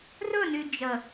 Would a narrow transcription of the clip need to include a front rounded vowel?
yes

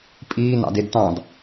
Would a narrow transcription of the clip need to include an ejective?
yes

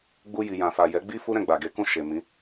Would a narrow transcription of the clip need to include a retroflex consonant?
no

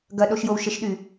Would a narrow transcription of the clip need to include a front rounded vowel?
yes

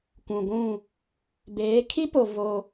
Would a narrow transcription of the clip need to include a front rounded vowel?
no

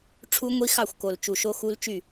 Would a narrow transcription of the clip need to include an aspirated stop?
yes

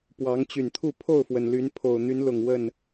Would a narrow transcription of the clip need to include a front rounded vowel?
yes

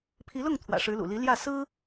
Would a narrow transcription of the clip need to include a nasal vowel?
no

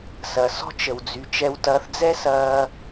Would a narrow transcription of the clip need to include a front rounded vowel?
yes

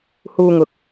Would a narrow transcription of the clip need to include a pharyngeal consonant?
no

